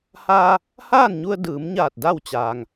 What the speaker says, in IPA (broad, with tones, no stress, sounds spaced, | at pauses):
h aː˧ | h aː˥˨ n ɲ u˧ ə̯ d ɯː˩˧ m ɲ aː˧˩ t̚ d a˥˨ w t͡ɕ aː˩ ŋ